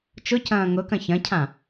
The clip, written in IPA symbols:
t͡ʃ ʊ c ɐ̃ː ŋ ʊ k ɐ̃ ç ɐ̃ cʰ ã

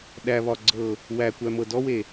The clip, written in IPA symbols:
ɗ æ β ɒ ɡ͡ǀ ɤ | w æ kʷ æ m ɤ d ɔ w e

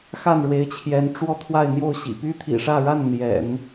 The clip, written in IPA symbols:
x a˥˩ n ɻ w e˧˥ ɪ̯ t͡ɕʰ j ɛ˧˥ n ʈ͡ʂ w ɔ˥˧ t̪ʰ w a˥˧ ɪ̯ n̪ j o˥˩ ʊ̯ ɕ ḭ˨˩ p y˥ t̪ʰ ḭ˨˩ ʂ ä˥˧ ɻ a˥˩ n n̪ j ɛ̰˨˩˦ n

